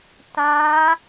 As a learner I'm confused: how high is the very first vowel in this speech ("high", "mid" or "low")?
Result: low